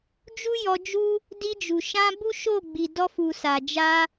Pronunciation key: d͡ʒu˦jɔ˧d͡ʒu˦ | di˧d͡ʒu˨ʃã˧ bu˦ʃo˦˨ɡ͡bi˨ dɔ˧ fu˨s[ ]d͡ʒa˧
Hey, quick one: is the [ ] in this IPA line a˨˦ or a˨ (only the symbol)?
a˨